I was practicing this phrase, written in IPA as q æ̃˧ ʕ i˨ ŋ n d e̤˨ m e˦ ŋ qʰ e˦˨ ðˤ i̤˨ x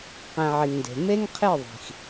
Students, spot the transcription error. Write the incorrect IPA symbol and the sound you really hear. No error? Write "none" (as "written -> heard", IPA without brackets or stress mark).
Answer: none